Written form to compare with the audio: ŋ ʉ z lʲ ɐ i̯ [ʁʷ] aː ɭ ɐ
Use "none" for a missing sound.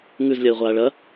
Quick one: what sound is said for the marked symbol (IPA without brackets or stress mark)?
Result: ʁʷ